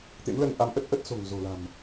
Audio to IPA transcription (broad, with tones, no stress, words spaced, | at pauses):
t̪ḛ˧˥mləː˧n ʔa˨˦mʔə˦˥t̚ʔə˦˥t̚so̤˨˩ŋ zo̤˨˩la̤˨˩m